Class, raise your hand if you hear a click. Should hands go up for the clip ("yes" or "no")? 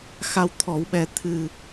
no